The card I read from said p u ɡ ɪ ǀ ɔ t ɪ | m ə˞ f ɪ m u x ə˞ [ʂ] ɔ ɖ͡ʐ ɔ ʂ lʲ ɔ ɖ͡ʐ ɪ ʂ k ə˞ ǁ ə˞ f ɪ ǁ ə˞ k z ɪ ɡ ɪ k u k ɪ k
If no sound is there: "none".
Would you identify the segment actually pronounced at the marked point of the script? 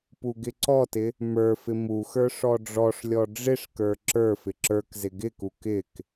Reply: ʂ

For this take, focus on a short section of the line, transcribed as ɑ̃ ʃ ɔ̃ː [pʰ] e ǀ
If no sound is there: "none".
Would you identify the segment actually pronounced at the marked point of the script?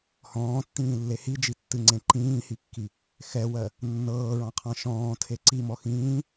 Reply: tʰ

